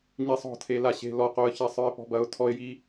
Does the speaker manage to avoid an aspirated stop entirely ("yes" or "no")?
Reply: no